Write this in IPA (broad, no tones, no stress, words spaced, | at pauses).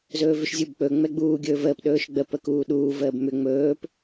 zɵːvʏʃzʲubk͡pɵ ŋ͡mɛɡ͡buː ɡʲɵːvəːp ɗɵːʃɡ͡bə pəkuːɗuː vəːbmʏ ŋ͡mɵːp